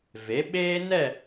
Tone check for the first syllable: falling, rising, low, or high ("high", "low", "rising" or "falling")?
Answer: rising